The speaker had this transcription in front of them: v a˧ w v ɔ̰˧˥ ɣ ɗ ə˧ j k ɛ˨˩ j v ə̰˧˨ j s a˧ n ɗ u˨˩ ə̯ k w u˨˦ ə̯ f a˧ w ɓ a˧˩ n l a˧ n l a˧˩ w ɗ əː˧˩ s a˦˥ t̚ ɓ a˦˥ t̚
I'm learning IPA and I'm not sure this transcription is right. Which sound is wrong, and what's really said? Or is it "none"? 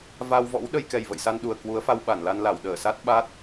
ɣ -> w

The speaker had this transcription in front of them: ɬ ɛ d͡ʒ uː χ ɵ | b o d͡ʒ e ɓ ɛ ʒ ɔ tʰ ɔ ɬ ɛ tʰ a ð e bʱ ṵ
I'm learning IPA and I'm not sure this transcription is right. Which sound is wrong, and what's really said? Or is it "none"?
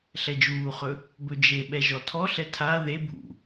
o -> ɵ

